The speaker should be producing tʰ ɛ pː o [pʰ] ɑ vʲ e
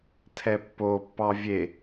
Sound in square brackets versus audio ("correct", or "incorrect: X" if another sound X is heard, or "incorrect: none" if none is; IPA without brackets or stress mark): incorrect: pː